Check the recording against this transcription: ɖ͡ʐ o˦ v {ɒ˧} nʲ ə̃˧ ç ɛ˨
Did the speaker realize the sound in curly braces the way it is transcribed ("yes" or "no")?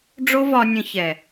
yes